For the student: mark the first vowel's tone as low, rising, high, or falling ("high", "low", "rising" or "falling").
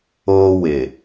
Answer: high